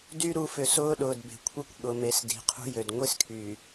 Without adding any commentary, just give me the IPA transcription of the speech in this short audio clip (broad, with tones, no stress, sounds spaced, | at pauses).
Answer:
d y˦ ɾ u˨˦ f ʏ˨ s ʊː˦ ɗ ʊː˨ d b e̤˨ kʷʰ e˦ kʷ ɠ ʊ˨ m e˨ s d i̤˨ qʰ ṳ˦ j ø˨ d ŋʷ i˦ s kʰ y˨